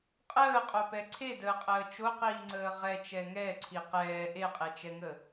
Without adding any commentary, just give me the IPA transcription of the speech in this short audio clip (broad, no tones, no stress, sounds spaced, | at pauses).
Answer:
qʼ əː qʼ o p ɛ ǀʰ e d əː qʼ əː t͡ʃ o q iː ŋ͡ǀ əː ʁ ɛ t͡ʃ ɛ ŋ ɛ ǀʰ i q ɛː ʔ e qʼ e t͡ʃ ɛ ŋ ə